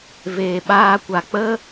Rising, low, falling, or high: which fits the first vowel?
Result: low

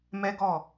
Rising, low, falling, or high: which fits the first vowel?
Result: high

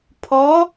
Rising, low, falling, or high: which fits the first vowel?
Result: rising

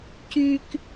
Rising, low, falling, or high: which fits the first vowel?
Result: high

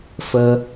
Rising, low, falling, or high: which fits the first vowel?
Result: high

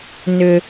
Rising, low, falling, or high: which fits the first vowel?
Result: low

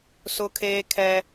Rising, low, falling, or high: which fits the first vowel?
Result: high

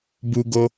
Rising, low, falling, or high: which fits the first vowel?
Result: high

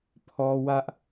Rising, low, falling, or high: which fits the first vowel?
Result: high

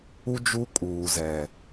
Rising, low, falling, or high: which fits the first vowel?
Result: high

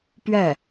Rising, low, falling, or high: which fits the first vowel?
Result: falling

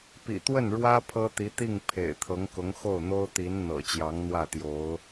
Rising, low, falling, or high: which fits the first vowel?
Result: low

